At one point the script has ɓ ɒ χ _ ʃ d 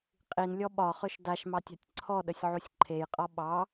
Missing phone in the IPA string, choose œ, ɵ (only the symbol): ɵ